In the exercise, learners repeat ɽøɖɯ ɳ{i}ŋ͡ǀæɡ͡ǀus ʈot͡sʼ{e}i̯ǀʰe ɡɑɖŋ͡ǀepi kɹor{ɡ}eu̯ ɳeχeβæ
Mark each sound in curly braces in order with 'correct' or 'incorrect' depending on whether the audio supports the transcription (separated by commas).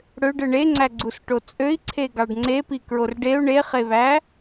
incorrect, incorrect, incorrect